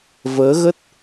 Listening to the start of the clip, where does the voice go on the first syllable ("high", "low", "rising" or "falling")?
rising